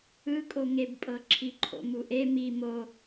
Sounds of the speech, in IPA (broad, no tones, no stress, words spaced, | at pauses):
ɯkʼoŋebpʼɤ ǁʰiǃʰo̰muʔe mi mo